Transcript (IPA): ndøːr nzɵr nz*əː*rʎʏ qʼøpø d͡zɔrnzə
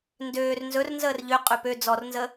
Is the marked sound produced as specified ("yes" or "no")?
yes